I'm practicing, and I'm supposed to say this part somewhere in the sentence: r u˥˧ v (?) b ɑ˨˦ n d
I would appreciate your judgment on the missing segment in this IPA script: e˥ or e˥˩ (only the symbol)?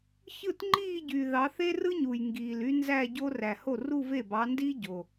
e˥˩